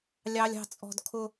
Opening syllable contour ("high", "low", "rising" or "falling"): high